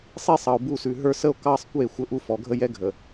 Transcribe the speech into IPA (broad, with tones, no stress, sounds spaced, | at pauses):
sˤ i˦ sˤ ɑ˨ o̯ b u˦˨ s ʉ˨ ɦ ə˞˦ s ə˦ o̯ k ɑ˦ sˤ kʷ e˦˨ xʷ ə˦ ʔ u˦ f ɔ˨ ɡʱ ə˦ j ɛ˦ ɡʱ ə˨